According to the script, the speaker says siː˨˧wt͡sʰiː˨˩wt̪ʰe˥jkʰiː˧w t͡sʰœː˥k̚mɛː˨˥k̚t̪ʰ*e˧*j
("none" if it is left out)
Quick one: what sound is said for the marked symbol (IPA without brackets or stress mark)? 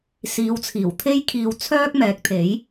e˨˥